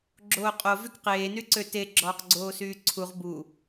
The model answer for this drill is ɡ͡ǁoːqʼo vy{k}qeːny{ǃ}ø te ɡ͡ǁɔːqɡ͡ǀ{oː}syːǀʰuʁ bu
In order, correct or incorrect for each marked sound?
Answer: correct, incorrect, correct

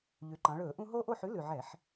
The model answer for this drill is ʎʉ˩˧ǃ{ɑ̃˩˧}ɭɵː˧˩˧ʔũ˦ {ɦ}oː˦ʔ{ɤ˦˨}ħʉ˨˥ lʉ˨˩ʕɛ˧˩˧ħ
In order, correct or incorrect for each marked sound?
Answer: correct, correct, incorrect

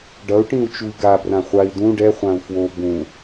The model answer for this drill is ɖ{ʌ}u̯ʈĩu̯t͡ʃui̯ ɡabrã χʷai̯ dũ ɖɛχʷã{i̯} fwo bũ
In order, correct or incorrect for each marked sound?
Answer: correct, incorrect

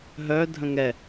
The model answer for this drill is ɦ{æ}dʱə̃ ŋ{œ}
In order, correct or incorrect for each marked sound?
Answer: incorrect, incorrect

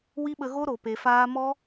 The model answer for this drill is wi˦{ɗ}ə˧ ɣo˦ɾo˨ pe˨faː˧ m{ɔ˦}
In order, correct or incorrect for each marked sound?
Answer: incorrect, correct

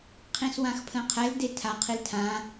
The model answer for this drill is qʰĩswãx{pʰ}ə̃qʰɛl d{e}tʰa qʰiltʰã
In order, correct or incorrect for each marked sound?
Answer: correct, correct

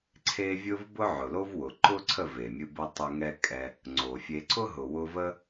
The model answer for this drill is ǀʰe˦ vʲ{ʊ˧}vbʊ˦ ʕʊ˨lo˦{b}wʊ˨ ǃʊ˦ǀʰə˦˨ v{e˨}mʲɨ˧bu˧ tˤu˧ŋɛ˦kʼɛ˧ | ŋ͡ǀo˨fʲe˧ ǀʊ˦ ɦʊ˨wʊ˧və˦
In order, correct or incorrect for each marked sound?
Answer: incorrect, incorrect, correct

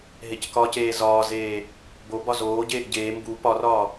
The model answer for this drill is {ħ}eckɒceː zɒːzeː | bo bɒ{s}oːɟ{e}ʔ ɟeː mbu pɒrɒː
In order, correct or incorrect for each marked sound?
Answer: incorrect, incorrect, incorrect

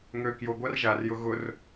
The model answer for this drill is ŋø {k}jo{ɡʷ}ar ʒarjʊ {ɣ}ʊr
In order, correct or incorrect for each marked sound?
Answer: correct, correct, correct

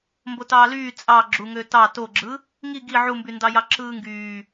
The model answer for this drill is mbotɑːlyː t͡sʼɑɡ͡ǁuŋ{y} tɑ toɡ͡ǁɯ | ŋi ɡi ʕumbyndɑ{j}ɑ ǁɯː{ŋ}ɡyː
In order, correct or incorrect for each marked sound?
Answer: incorrect, correct, correct

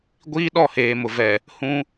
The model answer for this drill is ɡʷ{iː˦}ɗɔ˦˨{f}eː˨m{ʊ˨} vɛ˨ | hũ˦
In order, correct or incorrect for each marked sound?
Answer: correct, incorrect, correct

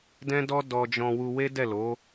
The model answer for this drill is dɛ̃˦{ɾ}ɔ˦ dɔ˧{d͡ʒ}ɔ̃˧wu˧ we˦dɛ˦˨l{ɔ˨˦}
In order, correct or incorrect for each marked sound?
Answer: incorrect, correct, incorrect

